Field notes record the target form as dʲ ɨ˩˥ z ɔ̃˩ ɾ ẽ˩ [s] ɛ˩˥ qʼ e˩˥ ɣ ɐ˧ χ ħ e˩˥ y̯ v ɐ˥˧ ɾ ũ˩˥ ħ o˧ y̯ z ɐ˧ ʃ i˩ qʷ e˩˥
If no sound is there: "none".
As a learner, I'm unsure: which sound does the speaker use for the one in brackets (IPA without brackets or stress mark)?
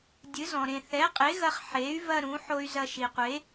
θ